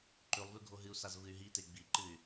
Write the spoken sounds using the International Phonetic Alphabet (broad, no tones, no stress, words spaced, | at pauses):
ǃʉlˠvʉ ɡʱoɦɨu̯saz vɨy̯ɦite ɡ͡biǃɨy̯